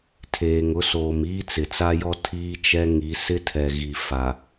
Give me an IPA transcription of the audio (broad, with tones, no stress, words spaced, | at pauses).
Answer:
tʰeː˨ŋʊ˦soː˨m iː˦t͡sɪ˨t͡sa˦jɔ˦ tʰiː˦t͡ʃɛ˦ŋi˨˦ sɪ˦tʰɛ˨ɣi˨ fa˨